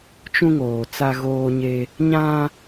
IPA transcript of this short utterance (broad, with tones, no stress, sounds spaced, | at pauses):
t͡ʃ ũ˦ ŋ oː˨ t͡s a˦ ɣ oː˦ ɲ e˦ | ɲ ã˦